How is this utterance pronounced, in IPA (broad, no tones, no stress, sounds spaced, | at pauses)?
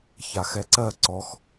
ç a x ɛ ǀ ɜ ǀ ɔ x